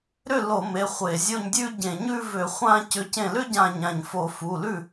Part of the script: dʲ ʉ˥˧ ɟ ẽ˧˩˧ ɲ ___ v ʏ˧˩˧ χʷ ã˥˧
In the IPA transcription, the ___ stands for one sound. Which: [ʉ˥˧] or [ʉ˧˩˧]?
ʉ˥˧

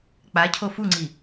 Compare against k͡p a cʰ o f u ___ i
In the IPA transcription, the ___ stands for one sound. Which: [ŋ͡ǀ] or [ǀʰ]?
ŋ͡ǀ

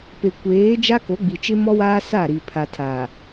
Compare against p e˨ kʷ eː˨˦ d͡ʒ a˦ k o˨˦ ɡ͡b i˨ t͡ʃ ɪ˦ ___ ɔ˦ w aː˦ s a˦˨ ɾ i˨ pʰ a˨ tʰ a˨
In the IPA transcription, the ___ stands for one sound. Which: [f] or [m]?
m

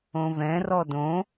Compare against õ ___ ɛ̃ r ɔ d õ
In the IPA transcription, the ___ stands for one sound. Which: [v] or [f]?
v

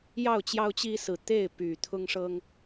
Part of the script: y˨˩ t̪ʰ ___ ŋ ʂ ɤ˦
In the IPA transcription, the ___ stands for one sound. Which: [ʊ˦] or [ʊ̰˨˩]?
ʊ˦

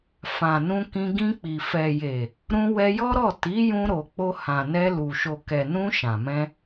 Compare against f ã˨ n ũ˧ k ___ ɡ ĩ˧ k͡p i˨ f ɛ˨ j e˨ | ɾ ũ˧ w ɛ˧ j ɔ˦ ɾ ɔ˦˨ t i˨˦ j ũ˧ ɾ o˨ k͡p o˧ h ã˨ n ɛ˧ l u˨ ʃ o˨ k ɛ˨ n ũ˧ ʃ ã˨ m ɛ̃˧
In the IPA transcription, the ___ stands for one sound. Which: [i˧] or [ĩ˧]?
ĩ˧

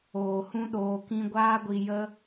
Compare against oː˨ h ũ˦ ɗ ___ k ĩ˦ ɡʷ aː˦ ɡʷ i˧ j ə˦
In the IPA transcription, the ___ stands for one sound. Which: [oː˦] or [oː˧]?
oː˧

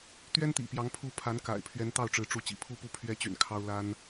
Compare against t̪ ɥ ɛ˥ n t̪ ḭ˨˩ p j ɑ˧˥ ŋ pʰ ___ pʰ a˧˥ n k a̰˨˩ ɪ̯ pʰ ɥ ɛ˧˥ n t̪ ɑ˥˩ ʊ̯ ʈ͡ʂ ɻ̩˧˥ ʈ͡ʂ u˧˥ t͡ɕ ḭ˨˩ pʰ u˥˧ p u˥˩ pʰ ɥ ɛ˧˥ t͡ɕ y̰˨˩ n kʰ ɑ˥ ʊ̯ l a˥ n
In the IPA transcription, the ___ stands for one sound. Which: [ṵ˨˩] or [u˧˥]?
u˧˥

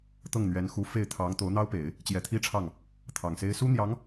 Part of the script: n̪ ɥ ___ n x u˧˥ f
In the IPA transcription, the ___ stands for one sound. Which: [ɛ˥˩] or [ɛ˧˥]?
ɛ˧˥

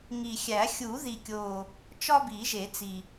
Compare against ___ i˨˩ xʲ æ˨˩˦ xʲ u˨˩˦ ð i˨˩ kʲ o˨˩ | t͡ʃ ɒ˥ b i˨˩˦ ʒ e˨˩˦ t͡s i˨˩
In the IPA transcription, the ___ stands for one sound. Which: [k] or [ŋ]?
ŋ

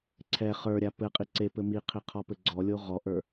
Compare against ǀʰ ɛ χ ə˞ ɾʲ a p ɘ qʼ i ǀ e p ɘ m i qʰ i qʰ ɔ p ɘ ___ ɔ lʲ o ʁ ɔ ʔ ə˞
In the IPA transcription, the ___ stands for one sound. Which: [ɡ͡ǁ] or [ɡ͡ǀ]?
ɡ͡ǀ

